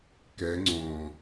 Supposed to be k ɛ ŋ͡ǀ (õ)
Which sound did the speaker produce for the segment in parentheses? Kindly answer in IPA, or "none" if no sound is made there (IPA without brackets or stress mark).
õ